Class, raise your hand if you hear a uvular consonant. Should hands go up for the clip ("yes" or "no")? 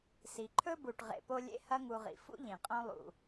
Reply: yes